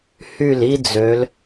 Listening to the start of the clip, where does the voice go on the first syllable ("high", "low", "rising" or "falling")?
falling